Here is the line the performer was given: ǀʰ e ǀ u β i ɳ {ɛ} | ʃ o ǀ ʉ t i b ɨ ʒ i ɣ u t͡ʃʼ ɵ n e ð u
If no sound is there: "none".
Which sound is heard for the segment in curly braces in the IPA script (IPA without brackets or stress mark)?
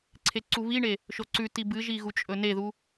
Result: e